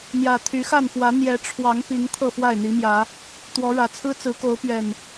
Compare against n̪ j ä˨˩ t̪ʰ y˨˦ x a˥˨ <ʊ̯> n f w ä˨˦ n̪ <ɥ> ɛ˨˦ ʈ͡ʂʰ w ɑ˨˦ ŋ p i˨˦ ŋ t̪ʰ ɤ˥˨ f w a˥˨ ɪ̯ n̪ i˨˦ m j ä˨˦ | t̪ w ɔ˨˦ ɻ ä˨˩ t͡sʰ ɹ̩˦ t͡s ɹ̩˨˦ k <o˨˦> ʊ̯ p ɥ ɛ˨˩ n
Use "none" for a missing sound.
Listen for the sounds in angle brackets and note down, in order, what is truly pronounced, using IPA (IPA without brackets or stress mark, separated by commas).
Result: none, j, o˨˦